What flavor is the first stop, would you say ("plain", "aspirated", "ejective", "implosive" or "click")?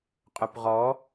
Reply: ejective